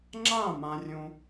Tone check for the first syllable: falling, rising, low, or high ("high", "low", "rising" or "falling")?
falling